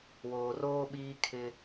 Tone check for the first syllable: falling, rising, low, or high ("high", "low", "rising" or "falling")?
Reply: low